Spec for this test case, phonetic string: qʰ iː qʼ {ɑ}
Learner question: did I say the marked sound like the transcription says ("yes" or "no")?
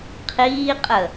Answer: no